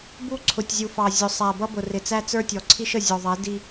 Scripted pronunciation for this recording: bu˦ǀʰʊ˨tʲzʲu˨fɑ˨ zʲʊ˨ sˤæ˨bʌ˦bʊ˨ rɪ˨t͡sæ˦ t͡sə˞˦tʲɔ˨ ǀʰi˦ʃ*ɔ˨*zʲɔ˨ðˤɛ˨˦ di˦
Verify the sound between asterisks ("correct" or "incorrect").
incorrect